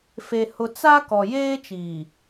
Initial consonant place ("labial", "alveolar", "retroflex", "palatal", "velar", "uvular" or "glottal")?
labial